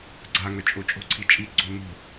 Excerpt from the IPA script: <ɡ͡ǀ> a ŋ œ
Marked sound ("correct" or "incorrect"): correct